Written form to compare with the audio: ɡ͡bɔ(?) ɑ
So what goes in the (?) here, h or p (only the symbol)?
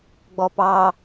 p